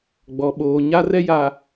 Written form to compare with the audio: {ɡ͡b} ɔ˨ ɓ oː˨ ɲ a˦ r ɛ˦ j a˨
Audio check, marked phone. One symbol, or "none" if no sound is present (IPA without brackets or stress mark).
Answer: ɡ͡b